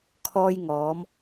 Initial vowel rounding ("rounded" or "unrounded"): rounded